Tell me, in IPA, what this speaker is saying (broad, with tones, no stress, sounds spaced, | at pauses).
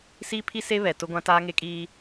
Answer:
s iː˦ pʰ i˦ s e˦ β ɛ˨ t ʊ˦ ɡʷ ã˦ t aː˦ ŋ e˦ kʼ iː˦